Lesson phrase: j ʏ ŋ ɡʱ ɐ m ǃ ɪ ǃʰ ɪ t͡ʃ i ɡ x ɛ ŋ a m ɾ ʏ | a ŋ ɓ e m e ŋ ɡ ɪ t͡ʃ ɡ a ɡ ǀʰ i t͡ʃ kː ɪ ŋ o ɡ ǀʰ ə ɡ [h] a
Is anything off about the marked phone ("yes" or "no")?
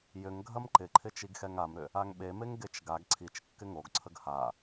no